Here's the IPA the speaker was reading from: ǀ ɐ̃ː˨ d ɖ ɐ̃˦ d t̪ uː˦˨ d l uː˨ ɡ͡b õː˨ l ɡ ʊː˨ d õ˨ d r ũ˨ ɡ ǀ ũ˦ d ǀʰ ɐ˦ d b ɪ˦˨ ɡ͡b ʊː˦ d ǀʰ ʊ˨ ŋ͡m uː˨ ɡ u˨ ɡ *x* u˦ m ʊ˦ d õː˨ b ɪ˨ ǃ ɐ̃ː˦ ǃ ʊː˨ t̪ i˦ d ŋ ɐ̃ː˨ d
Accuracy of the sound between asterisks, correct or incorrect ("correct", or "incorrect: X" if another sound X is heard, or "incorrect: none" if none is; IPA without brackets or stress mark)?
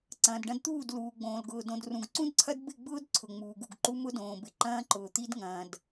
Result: incorrect: ǃ